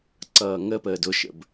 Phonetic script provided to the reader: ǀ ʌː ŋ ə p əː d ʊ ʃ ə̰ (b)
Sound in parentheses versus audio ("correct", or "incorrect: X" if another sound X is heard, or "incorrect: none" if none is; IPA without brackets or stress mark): correct